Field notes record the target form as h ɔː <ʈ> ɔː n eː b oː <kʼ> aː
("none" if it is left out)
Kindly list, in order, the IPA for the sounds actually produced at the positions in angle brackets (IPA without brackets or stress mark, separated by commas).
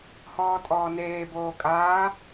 tʼ, kʼ